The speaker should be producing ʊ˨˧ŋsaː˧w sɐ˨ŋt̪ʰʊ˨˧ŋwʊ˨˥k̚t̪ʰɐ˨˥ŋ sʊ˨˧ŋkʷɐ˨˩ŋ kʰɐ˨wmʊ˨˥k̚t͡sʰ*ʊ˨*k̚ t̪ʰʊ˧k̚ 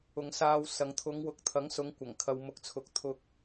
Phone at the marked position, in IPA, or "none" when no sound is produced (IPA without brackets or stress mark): ʊ˨˥